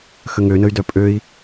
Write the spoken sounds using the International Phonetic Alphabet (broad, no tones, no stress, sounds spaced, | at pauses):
x ə ŋ ø n ə y̯ d œ pʼ ø i̯